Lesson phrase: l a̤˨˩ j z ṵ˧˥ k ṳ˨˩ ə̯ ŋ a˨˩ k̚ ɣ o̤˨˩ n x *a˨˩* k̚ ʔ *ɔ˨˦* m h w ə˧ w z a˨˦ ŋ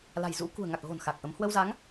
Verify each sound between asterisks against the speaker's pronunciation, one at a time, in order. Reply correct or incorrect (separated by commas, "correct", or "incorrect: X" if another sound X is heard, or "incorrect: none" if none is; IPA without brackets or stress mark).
correct, incorrect: ə˨˦